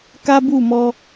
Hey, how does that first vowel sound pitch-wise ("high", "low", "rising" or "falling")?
high